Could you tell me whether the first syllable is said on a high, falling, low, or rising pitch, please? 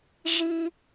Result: high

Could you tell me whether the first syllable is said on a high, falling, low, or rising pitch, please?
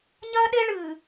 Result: high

